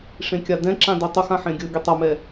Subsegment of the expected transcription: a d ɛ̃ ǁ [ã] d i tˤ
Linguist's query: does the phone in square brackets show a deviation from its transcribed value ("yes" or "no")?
no